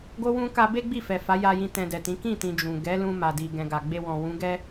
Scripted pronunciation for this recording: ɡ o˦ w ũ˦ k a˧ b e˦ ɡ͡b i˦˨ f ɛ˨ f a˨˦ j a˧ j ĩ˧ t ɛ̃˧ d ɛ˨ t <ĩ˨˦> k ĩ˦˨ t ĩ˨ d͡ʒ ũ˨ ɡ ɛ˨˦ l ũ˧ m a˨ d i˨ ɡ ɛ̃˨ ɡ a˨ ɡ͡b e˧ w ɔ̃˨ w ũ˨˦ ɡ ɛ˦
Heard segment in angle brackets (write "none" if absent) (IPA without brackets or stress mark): ĩ˨˦